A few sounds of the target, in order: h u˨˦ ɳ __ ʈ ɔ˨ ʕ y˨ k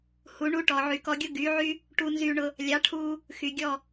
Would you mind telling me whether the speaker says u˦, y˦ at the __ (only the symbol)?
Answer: u˦